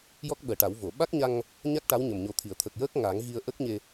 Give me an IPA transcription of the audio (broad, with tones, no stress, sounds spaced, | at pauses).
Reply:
j ɔ˦˥ k̚ ɓ əː˨˩ ʈ a˨˩˦ w v o˨˩˨ ɓ a˦˥ k̚ ɲ a˧ ŋ | ɲ a˦˥ k̚ ʈ a˧˥ w ɲ ə˨˩ m ɲ o˨˩ t̪ʰ i˨˩˨ ə̯ t̪ʰ ə˨˩ k̚ j əː˦˥ k̚ ŋ a˨˩˦ ŋ ɣ i˧ ə̯ ʔ ə˦˥ k̚ ɲ e˧